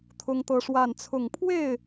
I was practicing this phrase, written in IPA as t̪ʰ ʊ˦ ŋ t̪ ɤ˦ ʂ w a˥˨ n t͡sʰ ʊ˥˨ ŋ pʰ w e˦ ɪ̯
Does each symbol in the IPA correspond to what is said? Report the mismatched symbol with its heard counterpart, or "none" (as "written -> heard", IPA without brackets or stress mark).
e˦ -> e˥˨